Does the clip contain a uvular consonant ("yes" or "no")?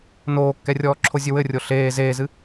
no